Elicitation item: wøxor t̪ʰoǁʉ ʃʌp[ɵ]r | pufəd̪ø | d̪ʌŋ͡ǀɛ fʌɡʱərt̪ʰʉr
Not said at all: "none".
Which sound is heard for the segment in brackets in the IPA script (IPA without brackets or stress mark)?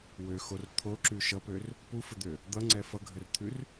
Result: ø